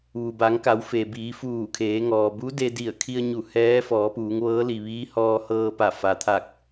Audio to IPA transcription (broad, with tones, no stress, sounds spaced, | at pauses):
ʋ u˩ b a˩˧ ŋ k a˩˧ w f e˩ b iː˩˧ f uː˧˩ kʰ eː˩˧ ŋ ɔː˩ b u˧˥ d e˧ d i˧˩ ə̯ kʰ i˧ ə̯ ɲ u˧˩ h ɛː˧˥ f ɔː˩˧ p uː˩˧ ŋ ʋ ɤː˧˥ l i˩ ʋ iː˧˥ h ɔː˧ h ɤː˧ p a˧˩ f a˩ t̪ʰ a˧˩ k̚